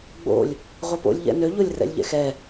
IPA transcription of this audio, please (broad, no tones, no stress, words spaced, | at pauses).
ɡ͡bo̰lʲ | ʁʷɛpo̰lʲ ʎɛ̰nø ʎolʲrɛ̰lʲʎɛ̰xɛ